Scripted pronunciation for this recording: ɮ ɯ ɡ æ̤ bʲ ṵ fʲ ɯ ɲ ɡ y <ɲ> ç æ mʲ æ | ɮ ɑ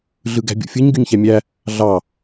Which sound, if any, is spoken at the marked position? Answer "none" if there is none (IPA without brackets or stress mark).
ɲ